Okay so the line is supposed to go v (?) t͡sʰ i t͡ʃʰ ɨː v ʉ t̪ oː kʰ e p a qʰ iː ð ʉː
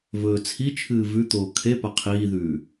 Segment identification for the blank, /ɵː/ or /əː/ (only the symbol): ɵː